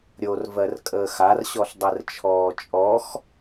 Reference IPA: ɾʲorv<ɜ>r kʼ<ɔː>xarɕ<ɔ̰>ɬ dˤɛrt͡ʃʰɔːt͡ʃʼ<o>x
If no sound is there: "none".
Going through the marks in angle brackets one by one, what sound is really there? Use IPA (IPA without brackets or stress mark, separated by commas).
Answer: ɜ, əː, ɔ, ɔ